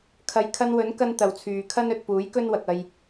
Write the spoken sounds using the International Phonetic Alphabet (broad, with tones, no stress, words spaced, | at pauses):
kʰɐ˨˧j kʰɐ˧nwɵ˨˥n kɐ˥nt̪ɐ˨wt͡sʰyː˨ kʰɐ˥n ɵ˨t̚puː˨˥jkɵ˥n wɐ˨k̚ɐ˧j